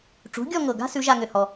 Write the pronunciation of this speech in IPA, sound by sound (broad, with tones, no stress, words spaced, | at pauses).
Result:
ʈ͡ʂṳ˩˥ɡʲɔ˥˧ŋɤ˨˩ɡa̤˥ sʉ˧˥ʒa˥˧ŋʏ˨˩ hɔ˨˩